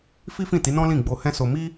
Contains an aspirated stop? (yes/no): no